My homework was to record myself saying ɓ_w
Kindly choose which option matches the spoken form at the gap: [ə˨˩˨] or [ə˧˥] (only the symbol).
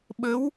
ə˧˥